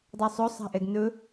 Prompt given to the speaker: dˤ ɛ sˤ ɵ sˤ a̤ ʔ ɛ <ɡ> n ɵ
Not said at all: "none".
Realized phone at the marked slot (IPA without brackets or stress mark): ɡ